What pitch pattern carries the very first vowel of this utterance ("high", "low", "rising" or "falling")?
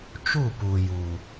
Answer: falling